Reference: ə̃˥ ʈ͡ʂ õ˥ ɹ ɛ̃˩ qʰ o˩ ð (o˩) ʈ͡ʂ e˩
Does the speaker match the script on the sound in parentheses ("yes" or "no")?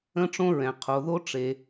no